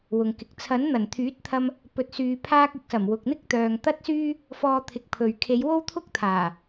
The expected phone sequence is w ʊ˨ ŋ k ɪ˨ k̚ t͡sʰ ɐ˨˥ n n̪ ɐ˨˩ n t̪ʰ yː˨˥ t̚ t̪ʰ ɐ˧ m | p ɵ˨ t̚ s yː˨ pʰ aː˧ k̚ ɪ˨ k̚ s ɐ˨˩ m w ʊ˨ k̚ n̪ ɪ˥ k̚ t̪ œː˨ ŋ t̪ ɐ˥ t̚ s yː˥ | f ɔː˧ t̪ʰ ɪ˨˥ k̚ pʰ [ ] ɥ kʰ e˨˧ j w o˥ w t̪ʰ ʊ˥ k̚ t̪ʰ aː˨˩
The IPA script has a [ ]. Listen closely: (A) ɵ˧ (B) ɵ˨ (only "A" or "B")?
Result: B